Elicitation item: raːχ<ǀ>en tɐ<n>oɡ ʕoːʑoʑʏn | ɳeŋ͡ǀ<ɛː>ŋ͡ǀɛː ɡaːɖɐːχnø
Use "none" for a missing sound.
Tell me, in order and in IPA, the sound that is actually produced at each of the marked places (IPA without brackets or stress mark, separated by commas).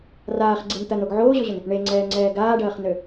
ɡ͡ǀ, n, ɛː